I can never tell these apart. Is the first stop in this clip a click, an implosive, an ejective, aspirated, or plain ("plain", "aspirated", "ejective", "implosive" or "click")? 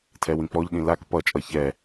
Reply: aspirated